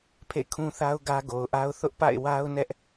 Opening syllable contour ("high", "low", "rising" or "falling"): falling